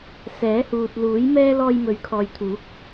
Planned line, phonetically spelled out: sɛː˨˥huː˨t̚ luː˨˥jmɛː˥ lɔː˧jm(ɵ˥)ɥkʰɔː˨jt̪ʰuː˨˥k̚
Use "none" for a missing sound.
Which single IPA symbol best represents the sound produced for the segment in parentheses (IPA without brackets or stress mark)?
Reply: ɵ˨˥